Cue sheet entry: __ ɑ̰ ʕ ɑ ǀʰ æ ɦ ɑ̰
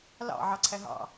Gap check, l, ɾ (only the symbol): l